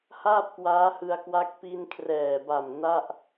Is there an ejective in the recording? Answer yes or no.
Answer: no